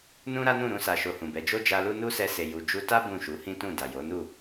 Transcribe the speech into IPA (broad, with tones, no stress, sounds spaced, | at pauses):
n ũ˦ ɾ a˦ n ũ˦˨ ɾ ũ˨˦ s a˧ ʃ o˧ h ũ˨ b ɛ˨˦ d͡ʒ o˦ d͡ʒ a˧ l u˦ n u˦ s ɛ˧ s e˨ j u˨ d͡ʒ u˧ t a˦ b ũ˦˨ ʃ u˨˦ h ĩ˦ t ũ˦˨ d a˨ j o˨˦ n u˦˨